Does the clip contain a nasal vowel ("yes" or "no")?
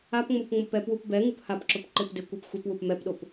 no